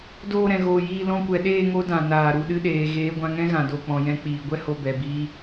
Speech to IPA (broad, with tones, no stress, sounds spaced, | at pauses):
d oː˦˨ ɾ ɛ̃˨ ɣ oː˨ j iː˧ l ɔ̃˧ kʷ ɛ˨ ɗ eː˦˨ ŋ o˦ d ã˨ n aː˨ ɾ u˨ ɗ ɨ˧ ɗ eː˨ ɣ eː˨˦ ɡʷ ã˧ ŋ ɛ̃˦ ɣ ã˨ d o˨ k͡p ɔ̃˨ j ɛ̃˧ k͡p iː˨ ɡʷ ɛ˦ h o˧ b ɛ˨ b iː˧